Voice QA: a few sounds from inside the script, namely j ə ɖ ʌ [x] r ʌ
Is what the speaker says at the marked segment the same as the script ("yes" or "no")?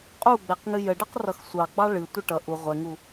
no